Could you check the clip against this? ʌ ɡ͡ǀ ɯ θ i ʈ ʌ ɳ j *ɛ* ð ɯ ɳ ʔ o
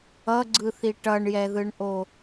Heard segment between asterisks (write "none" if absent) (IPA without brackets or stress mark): ɛ